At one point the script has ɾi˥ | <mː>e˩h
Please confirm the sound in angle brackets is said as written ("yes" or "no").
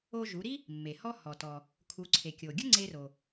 yes